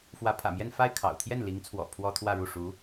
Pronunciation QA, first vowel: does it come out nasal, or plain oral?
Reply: oral